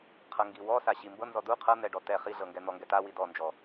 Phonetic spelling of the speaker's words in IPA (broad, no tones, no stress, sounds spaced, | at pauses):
qʰ ɤ ŋ ɡ i w ɔ s a ɕ i m b ɤ n z ɔ d u qʰ ɤ n̪ ɛ ɖ ɔ t ɛ χ i ɮ ɤ ŋ ɡ ɛ n̪ ɔ ŋ ɡ ɛ t a w i d ɔ n d͡ʒ ɔ